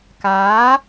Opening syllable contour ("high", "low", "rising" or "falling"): rising